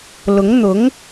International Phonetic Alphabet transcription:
l ʊ˧˥ ŋ n̪ ʊ˧˥ ŋ

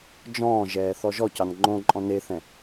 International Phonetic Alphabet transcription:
d͡ʒ ɔ̃ː ʒ ɛː θ ɔ ʒ ɔ c ɑ n ŋ͡ǃ õ ǃʼ ɔ̃ n e θ ɛ̃

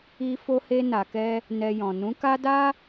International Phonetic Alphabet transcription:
i˧ f o˧ h e˧ n a˨ k ɛ˧ | n ɛ˧ j ɔ̃˨ n ũ˨˦ k a˦ d a˦

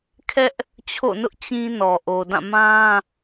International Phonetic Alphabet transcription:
kʰ ɛ˦ ʔ | t͡ɕʰ o̰˦˨ n ʊ˦ ʔ t͡ɕ ĩ˦ n ɔ˨ ʔ o˨ d ã˦˨ m ã˦

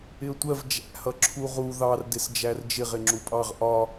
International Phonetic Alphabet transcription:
ɪ ə̯ tʷ ɜ v d͡ʒ æ̰ h ʌ ǁʰ u ʁ u ð ɑ r d ɪ s d͡ʒ æ r d͡ʒ ɪ ʁ ɪ ŋ͡ǁ u pʼ ɑ ʁ ʔ ɒ

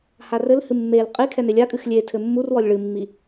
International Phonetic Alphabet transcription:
h a r ɘ l h ɨ mː e l qʼ i kʰ ɛ n e lʲ a kʼ ɨ x lʲ e tʰ ɘ mː u r w ɔ lʲ ɭ ɨ mː i

